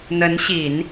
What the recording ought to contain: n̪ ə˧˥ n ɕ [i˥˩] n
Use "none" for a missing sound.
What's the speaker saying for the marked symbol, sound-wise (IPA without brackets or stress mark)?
i˨˩˦